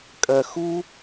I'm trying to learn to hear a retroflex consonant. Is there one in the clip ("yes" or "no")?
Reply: no